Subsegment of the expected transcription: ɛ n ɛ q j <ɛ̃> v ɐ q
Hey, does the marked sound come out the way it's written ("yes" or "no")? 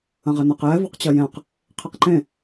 no